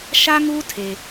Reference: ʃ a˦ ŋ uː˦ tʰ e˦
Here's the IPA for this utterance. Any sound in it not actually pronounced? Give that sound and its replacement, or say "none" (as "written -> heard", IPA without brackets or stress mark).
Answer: none